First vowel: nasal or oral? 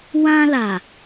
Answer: nasal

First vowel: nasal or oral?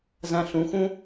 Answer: nasal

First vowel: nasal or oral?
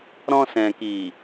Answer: nasal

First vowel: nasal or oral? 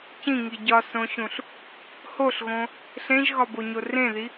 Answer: nasal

